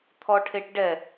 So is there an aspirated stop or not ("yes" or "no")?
yes